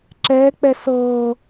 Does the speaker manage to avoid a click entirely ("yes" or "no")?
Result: no